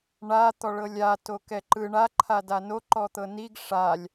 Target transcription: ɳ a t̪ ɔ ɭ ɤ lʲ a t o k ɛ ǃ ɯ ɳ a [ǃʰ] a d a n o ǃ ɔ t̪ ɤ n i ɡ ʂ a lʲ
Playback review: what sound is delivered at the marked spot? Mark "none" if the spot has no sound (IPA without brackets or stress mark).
ǃʰ